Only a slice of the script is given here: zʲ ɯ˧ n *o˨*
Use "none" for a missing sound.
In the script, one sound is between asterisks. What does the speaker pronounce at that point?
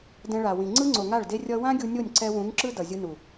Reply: u˨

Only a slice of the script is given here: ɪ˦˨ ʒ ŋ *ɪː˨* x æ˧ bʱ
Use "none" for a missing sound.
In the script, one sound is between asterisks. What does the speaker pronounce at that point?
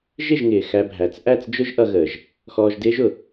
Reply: ɪː˨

